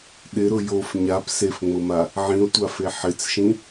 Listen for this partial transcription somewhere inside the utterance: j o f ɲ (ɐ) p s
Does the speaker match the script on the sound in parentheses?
no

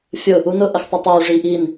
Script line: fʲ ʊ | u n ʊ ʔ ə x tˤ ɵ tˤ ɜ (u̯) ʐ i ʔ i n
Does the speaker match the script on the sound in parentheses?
yes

